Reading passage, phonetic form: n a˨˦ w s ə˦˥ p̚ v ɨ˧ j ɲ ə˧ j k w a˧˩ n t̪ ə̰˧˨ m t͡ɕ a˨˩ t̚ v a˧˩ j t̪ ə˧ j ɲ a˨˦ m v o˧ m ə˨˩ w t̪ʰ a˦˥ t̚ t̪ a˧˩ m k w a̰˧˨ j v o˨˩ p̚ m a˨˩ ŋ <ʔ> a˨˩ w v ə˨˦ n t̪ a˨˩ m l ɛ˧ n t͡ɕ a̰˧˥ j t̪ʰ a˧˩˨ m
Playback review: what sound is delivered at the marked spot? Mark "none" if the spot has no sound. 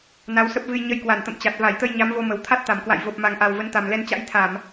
ʔ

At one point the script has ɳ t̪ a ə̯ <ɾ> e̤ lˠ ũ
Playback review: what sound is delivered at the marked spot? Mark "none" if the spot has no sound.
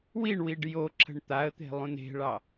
t̪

